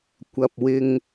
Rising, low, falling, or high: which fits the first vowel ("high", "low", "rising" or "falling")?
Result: low